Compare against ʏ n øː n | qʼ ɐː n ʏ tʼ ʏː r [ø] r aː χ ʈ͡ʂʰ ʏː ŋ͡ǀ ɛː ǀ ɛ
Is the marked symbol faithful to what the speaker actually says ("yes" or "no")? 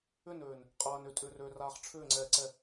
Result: yes